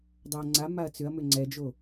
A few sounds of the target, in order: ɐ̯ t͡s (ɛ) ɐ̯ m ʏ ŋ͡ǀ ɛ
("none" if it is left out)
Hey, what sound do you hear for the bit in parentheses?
ʏ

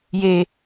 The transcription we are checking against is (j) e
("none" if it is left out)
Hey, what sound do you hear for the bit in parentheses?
j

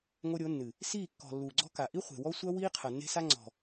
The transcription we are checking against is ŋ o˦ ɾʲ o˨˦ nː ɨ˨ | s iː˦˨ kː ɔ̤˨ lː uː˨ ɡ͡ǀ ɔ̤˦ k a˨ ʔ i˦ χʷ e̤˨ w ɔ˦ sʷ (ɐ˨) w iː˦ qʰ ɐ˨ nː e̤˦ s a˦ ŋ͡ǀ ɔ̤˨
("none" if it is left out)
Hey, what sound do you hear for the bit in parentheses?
ɐ˦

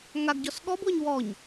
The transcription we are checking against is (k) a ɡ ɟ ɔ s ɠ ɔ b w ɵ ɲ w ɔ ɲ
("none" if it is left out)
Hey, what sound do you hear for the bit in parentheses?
ŋ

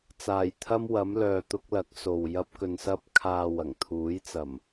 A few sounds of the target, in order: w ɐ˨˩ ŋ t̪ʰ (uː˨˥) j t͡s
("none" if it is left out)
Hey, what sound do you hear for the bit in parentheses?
uː˨˥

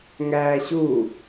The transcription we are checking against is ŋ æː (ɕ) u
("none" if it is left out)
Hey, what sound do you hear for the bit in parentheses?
ɕ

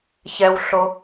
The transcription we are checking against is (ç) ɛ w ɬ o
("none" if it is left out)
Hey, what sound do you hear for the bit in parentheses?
ç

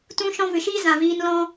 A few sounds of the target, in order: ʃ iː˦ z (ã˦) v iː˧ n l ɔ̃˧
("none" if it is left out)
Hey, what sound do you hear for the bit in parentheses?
ã˨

